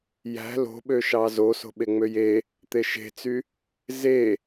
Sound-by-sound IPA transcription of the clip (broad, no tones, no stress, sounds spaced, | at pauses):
j æ̤ l o̤ ɓ ø ʃ ɑ z o s o̤ ɓ e ŋ͡m ø j e | t̪ e ʃ e̤ t͡s y | z e